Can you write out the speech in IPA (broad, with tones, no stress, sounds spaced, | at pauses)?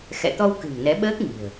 x ɛ̰˧˨ t̪ ɔ˧ w k ɨ̤˨˩ ŋ n ɛ˨˦ ɓ əː˦˥ k̚ ŋ i̤˨˩ ə̯